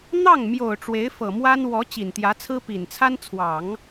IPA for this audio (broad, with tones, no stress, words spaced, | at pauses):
n̪ɑ˥˩ŋmjo˨˩ʊ̯ ʈ͡ʂwe˧˥ɪ̯fɤ˨˩mwa˥n wɔ˧˥ t͡ɕi˨˩nt̪jä˧˥t͡sʰɹ̩˥ pi˨˩nt͡sʰa˥nt͡sʰwɑ˨˩˦ŋ